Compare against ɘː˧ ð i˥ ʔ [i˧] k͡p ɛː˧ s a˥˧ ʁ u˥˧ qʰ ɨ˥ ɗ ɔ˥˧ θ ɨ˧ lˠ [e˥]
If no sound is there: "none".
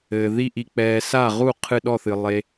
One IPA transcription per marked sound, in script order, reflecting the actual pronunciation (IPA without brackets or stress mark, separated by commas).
i˧, e˧